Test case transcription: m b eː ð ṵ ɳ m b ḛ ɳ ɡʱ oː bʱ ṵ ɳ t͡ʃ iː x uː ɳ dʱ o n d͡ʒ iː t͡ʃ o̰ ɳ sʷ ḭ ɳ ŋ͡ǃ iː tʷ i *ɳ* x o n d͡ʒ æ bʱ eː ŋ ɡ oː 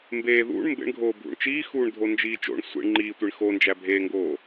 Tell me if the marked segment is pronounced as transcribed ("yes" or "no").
yes